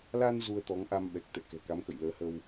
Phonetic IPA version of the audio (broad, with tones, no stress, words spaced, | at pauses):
la˧n zu˧ə̯t̪ɔ˨˦ŋʔa˧mɓɛ˨˩k̚ t̪ɛ̰˧˨kɛ̤˨˩ka˨˦mkə̰˧˨j ləː˨˦hə˧w